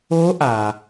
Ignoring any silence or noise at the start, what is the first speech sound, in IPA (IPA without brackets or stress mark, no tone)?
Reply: o